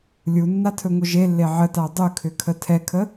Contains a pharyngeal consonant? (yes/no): yes